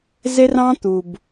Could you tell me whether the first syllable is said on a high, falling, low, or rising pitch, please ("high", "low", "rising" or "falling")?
high